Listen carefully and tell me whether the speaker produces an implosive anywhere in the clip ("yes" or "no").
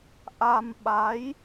yes